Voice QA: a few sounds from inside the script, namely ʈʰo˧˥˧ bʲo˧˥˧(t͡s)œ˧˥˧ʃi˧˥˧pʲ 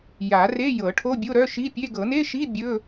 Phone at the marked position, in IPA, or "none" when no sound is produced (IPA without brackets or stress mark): ɾ